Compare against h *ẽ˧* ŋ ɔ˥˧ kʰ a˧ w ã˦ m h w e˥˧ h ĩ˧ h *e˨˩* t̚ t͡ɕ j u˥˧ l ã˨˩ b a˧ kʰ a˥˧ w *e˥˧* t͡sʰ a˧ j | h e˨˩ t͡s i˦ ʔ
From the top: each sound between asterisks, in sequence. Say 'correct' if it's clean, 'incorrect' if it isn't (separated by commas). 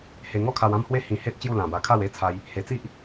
incorrect, incorrect, incorrect